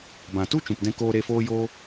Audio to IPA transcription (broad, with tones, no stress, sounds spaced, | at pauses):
b ã˨ t u˦ t͡ʃ ũ˨ p d ɛ̃˧ k oː˧ ɾ e˧ f oː˦ j oː˦